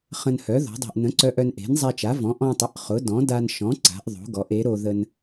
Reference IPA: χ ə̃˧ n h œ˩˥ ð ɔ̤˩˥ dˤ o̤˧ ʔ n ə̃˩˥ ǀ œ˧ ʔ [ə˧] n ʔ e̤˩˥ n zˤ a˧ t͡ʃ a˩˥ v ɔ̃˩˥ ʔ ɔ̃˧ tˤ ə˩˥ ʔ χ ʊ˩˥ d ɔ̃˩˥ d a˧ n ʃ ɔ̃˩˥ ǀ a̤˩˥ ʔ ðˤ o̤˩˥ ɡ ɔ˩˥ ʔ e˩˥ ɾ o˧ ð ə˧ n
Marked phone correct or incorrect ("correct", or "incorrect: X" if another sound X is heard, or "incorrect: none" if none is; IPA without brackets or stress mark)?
incorrect: œ˧